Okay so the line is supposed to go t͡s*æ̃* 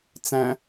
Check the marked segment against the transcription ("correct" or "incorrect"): correct